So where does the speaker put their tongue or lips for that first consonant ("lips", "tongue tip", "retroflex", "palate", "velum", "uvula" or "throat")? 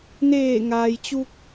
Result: tongue tip